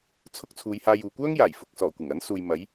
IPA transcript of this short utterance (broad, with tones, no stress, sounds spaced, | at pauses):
t͡sʰ ʊ˥ k̚ t͡sʰ uː˨˧ j h aː˧ j uː˨ kʷ œː˥ ŋ j aː˨˩ j f ʊ˨ k̚ s ɔː˨˩ kʷ ɪ˨˩ ŋ ɐ˨˥ n s uː˨ j m ɐ˨˥ j